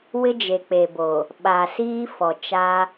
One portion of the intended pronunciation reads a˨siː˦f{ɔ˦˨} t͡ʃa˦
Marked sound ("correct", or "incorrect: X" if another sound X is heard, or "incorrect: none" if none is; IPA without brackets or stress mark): incorrect: ɔ˨